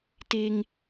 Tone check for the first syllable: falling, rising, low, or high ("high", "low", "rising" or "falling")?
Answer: high